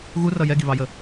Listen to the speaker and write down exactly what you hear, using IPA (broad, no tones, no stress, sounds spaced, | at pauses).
ɣ u r ʌ j ɛ ɡ i β ɑ j ə